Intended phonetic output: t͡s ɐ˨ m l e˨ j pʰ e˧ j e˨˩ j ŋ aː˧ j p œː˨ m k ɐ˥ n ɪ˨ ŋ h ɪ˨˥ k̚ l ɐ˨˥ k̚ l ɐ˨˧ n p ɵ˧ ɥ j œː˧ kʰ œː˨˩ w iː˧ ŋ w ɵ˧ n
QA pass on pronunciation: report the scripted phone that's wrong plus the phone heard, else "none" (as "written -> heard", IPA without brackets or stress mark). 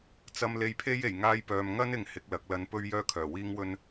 k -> ŋ